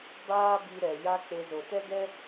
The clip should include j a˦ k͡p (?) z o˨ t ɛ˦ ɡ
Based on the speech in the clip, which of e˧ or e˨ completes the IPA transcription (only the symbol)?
e˧